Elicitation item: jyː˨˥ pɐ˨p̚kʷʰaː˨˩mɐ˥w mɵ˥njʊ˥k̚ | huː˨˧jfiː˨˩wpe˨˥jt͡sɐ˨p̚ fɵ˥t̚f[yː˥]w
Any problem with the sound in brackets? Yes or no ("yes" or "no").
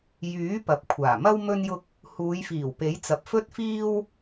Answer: yes